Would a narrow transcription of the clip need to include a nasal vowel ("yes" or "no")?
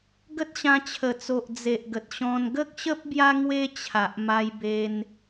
yes